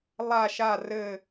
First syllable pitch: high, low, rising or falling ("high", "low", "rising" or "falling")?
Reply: falling